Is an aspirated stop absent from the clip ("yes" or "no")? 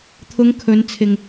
no